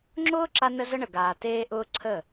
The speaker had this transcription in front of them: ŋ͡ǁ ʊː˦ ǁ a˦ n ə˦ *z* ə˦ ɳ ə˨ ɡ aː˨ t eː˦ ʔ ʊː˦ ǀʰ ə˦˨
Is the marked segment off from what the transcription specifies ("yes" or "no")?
no